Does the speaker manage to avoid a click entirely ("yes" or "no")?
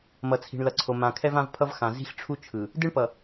no